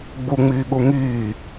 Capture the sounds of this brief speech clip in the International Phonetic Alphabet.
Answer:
ɡ͡buŋ͡miːɠu ŋiː

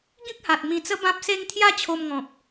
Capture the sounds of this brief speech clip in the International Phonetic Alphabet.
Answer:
ɡĩ˦k̚ha˨t̚ mĩ˧t͡sə˦ bã˦p̚se˦ŋ t̪ʰja˦t͡ɕʰo˧mŋɔ̃˨p̚

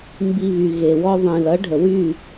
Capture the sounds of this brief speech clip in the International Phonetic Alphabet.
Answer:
mbi˧βy˨ ɣe˨wɔ˦ ðˤĩ˨lʌ˨˦ɖʱə˨wy˦˨

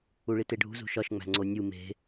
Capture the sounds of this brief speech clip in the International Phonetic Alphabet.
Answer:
uɭiteɖʱṳ zṳʃɒʃŋ͡mæ̤ ŋ͡ǀonʲu me̤

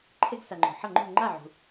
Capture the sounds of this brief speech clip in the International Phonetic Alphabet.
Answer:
ǃʰe˧ɡsa˩ŋ͡ǃo̤˩ ħʌ˥˩ŋ͡ǃṳ˥˩ ŋ͡ǃa˥˩ʕṳ˩

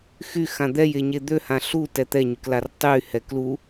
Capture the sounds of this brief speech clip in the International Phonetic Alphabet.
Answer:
xyxã d̪ɛjeɲe d̪øhã ɬutɛ t̪ɛɲyklar tˤyhɛ klu

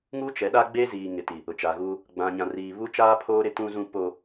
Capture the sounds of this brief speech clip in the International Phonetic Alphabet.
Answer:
ŋu˦t͡ʃɛ˨˦ɗa˦ɡ͡be˦ ziː˨ŋɪ˨ ti˨ | ʊ˨t͡ʃa˨ɣuː˦ | ɡ͡bã˨ɲã˨riː˨ βu˦t͡ʃaː˦ pʰoː˦ɾɪ˦ tũ˦zũ˦ po˦

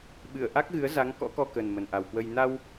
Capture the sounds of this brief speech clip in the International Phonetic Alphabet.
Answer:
ɓɨ˧˩ə̯ʔa˦˥k̚ɣɨ˨˦ə̯za˨˦ŋ kɔ̰˧˥kɔ˧kə˨˩n mə˨˩nʔa˨˩wkwə˧j na˧w

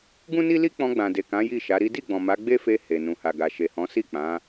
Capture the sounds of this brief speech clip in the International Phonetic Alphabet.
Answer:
ɡũ˦ni˦li˦ k͡pɔ̃˧ɡ͡bã˨de˨kã˨˦ ji˦˨ ʃa˨˦ɾi˦ di˦˨ɡ͡bɔ̃˨ ma˨˦ɡ͡be˦fe˧ he˨nũ˨ha˨ɡa˨ ʃe˨hɔ̃˨˦si˦˨k͡pã˨˦

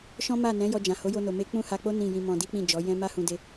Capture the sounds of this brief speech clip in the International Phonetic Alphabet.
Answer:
ʃɔ̃˦ ma˦˨ nɛ̃˨˦jɔ˧d͡ʒã˨ ho˨˦jo˧no˨ me˧ k͡pũ˦ha˧k͡po˦ nĩ˦˨jĩ˧mɔ̃˧ di˦k͡pĩ˦˨d͡ʒɔ˨˦ jɛ̃˦ ma˦ hũ˧de˧

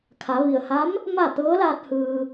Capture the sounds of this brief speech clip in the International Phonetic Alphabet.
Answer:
kʰa˩˧ ʋi˩ə̯ha˧˥m | ma˥˨ t̪ɤː˧˥laː˧t̚ hɯː˧

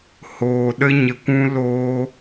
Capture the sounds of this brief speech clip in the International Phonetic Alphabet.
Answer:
hoː˨ɗə˧ɲə˨kʷũ˧ loː˧

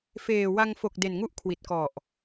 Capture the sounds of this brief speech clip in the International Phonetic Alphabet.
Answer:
feː˨˩wa˧ŋ fo˨˩k̚ de˨˩nŋu˥˩ʔkʰwi˨˩t̚kɔ˨˩ʔ

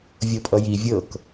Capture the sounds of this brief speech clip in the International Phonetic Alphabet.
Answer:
vʲɤpʼʌji vʲɤk

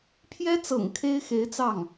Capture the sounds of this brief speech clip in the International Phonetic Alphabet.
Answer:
pʰjɛ˥t͡sɤ̰˨˩ŋ kʰe˥ɪ̯xe˧˥ɪ̯t͡sɑ˥˩ŋ

